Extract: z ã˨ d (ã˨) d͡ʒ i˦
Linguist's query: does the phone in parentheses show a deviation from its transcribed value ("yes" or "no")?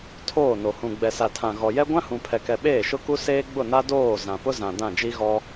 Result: yes